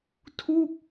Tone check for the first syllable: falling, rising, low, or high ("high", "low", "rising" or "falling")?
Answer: falling